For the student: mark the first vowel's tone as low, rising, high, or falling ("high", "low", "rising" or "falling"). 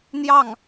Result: falling